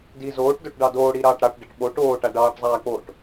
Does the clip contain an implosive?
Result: yes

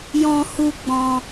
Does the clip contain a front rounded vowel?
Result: no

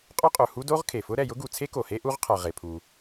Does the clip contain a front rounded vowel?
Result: no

